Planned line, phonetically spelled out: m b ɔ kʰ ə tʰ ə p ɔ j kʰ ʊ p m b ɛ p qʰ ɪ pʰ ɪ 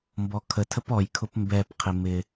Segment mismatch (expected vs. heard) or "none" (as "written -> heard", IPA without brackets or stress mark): pʰ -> m